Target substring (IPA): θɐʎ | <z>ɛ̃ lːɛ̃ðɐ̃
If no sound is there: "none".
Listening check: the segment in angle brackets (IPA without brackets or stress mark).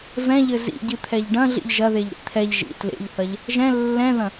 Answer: ʒ